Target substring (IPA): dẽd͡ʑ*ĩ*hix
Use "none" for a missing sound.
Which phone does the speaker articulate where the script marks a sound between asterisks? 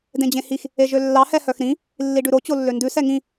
ẽ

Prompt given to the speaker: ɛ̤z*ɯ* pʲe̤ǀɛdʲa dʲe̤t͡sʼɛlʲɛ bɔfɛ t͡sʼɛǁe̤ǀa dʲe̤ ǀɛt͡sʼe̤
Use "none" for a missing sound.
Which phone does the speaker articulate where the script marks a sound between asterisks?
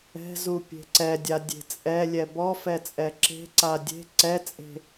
u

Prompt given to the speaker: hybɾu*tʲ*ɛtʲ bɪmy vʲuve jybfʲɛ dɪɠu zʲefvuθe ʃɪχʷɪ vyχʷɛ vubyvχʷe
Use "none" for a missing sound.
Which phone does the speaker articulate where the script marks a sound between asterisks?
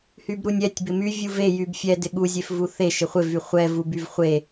nʲ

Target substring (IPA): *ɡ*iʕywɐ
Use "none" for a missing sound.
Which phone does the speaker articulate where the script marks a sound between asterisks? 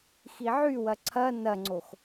x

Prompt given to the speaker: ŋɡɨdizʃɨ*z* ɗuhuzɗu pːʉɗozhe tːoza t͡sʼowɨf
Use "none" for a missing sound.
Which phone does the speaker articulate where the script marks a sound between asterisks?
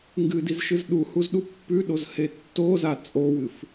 z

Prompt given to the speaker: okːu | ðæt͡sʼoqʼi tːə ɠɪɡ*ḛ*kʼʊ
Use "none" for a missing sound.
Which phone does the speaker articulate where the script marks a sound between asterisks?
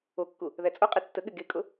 e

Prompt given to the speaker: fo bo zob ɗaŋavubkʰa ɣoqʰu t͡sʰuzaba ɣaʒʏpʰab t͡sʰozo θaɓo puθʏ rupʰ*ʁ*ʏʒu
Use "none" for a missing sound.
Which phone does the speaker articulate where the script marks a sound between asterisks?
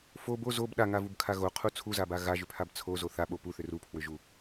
w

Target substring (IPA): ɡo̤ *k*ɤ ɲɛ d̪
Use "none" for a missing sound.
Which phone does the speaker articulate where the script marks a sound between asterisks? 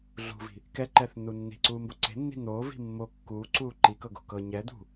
k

